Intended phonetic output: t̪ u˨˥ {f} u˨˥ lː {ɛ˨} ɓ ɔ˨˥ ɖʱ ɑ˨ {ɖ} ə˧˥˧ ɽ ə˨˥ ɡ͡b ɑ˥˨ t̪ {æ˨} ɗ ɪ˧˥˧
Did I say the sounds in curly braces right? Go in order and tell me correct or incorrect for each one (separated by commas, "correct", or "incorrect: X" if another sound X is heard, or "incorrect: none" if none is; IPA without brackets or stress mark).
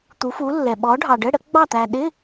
correct, correct, correct, correct